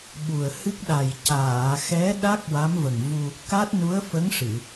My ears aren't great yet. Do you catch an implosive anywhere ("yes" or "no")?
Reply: yes